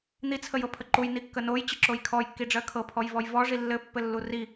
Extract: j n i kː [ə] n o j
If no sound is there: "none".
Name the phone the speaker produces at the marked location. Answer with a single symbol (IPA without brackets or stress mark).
ə